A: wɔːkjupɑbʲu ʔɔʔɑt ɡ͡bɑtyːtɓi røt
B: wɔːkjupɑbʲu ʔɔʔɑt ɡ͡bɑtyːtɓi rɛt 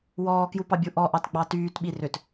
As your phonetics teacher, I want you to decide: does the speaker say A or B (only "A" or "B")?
A